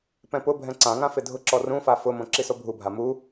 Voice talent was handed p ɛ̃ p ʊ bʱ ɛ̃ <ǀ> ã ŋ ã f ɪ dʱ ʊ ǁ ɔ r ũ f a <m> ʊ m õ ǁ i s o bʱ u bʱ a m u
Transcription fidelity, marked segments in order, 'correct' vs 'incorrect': correct, incorrect: f

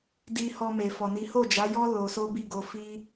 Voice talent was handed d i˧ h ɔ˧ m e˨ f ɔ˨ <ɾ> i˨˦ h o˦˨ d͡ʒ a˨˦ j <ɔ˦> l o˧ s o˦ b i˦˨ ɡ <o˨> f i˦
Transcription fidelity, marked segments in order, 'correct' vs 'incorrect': incorrect: n, correct, incorrect: o˧

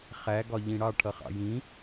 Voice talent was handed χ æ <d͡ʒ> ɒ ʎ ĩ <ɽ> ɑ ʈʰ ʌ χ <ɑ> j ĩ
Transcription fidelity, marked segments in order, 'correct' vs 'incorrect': incorrect: ɡ, correct, incorrect: ɑ̰

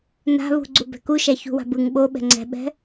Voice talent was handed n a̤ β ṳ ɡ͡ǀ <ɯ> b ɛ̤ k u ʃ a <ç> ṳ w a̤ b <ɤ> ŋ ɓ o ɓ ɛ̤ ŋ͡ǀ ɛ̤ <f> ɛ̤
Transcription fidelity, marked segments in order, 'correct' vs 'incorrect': incorrect: u, correct, incorrect: ɯ, incorrect: ɓ

